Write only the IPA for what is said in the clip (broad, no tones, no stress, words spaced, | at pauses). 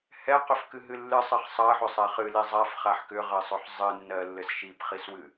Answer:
hɛqʏfkɨɦɨ lːɨsˤɘχ sˤɜħʏsˤɛ χɨli zˤafχaħ kʏʁɘsˤʏħ zˤɨnːɜlːɘs ʃipχiswɨ